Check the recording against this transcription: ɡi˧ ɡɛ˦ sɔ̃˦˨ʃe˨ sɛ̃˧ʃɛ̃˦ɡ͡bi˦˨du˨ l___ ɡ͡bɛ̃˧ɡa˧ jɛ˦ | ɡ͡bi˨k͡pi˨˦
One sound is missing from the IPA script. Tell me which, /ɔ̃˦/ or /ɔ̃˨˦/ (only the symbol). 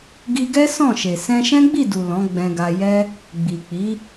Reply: ɔ̃˨˦